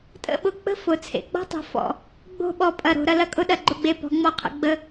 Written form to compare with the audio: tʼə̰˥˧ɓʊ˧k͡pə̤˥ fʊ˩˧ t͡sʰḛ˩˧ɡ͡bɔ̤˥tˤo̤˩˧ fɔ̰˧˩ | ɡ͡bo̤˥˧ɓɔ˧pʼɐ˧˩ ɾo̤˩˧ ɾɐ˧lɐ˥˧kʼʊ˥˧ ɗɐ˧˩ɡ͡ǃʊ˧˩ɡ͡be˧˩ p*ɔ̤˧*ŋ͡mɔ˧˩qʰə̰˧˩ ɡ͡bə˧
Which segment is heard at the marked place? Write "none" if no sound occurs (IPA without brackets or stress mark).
ɔ̤˩˧